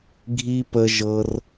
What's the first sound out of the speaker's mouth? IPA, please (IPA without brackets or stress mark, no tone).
ɡʱ